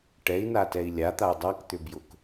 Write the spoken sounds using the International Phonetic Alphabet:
ʈ ɛ i̯ n a t ɛ i̯ lʲ a t̪ a u̯ dˤ a k t̪ ʏ b j ʊ k

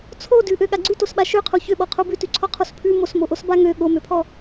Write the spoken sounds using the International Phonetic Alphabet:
t͡sʰ o d ʉ ʔ ø ɠ a ɡ͡ǀ ʉ t o s ɓ a ʃ ø qʰ o ç ø ɓ ɔ qʰ o b ʉ t ʉ ǀʰ ɔ qʰ o s pʰ ʉ m o s m o ʔ o s b a ŋ ø ɠ o m ø pʰ ɔ

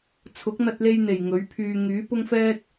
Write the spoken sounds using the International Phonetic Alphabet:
t͡sʰ ʊ˨˥ k̚ n̪ ɐ˧ t̚ l e˧ j n̪ e˨˩ j ŋ ɵ˨˥ ɥ pʰ yː˧ ŋ yː˨˥ p ʊ˥ ŋ f ɛː˥ t̚

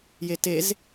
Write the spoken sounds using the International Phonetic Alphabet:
j e t e z

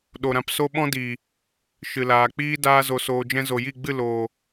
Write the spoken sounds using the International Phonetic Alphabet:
ɗ o˨ ɾ ã˧ p s o˦ ɓ ɔ̃˦ d iː˨ | ʃ ɨ˨ l aː˨ k͡p iː˦ d aː˦ z o˧ s oː˧ d͡ʒ ɛ̃˦ z o˨ j i˦˨ ɡ͡b ɨ˦˨ l oː˨

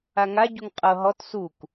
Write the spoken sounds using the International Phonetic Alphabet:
a ŋ a ɟ u ŋ qʼ ɤ ɦ ɔ t s u k

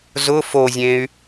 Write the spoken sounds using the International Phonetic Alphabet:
z ʊ f o zʲ ẽ y̯

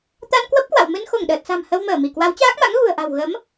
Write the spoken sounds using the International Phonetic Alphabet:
t̪ a˧ n k w ə˦˥ p̚ k w a̰˧˨ w m ɨ˧ n x o˧˩ ŋ ɗ əː˨˩ t̚ s a̤˨˩ m h ə˧ w m əː˧˩ m i˧˩ k w a˨˦ w t͡ɕ aː˦˥ k̚ m a̰˧˥ ŋ ɣ ṳ˨˩ ə̯ ʔ a̤˨˩ w ɣ ə˨˦ m

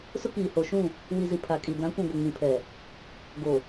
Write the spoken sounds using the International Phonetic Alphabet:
s ʊ˦ k iː˨ h o˨ ʃ ũ˦˨ | w i˨ z i˨ pʰ a˨ kʼ i˨ d ã˨˦ kʷ ũ˨ ɡʷ ɪ˨ ŋ ĩ˨ pʰ ɛ˨ | ɡ o˨

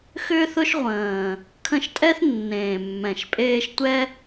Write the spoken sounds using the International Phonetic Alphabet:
x ʏː˥ θ ʊ˥ ʃ ʁʷ ə̃ː˨˩ | kʰ ə̃˥˩ ʃ tʼ ɛ˥ θ nː ẽː˨˩ mː ɛ̃˨˩ ʃ pʼ eː˥ ʃ tʷ ɛ˥

